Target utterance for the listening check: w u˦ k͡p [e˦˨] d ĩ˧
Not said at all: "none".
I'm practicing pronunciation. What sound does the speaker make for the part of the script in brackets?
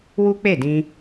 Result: e˦˨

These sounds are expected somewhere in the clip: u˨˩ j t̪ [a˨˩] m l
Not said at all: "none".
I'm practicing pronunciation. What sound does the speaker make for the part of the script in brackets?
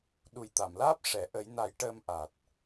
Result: a˨˩˨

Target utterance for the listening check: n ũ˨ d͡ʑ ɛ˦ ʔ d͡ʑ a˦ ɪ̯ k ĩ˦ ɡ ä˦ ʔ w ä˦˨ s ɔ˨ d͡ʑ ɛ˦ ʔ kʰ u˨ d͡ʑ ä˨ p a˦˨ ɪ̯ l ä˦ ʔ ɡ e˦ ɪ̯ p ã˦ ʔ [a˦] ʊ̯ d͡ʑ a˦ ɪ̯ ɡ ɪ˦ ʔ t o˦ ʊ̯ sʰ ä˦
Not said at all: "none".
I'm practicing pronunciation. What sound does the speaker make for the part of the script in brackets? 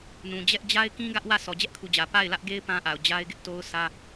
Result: a˨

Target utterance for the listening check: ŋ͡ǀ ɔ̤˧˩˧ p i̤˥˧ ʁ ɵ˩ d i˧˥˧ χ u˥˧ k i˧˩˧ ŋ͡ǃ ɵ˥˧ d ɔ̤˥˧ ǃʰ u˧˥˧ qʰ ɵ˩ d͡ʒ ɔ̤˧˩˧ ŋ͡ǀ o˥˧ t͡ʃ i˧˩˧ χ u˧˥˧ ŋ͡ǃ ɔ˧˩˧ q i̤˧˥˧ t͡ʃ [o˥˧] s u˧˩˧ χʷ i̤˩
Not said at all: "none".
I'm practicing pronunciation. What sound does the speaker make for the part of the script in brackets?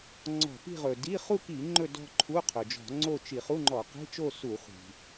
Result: o˥˧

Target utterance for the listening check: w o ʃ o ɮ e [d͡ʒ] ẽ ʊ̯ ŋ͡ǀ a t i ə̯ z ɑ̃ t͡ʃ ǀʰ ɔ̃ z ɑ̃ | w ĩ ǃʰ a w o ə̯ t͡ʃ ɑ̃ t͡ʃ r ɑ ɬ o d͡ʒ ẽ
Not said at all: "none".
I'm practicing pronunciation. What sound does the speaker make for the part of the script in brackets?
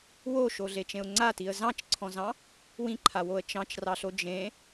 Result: t͡ʃ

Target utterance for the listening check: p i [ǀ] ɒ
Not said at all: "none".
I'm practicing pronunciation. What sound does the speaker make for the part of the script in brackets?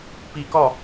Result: k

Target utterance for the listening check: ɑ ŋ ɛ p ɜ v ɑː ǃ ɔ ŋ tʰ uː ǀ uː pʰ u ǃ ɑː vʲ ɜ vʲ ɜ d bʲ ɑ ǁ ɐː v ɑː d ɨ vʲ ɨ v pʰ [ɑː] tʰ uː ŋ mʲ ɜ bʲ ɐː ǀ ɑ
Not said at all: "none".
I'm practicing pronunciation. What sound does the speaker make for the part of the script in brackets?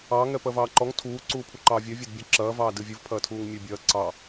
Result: ɐː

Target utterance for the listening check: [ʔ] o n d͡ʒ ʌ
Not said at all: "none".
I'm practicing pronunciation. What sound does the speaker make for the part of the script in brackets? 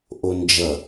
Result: ʔ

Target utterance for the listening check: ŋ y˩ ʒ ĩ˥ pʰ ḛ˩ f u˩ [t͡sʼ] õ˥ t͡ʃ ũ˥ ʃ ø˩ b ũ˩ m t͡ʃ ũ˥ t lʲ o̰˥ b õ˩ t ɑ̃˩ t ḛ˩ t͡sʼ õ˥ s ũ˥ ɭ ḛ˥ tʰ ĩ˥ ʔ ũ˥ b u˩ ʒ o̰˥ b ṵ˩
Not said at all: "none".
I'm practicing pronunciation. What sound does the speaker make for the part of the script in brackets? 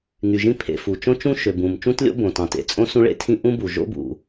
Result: t͡ʃ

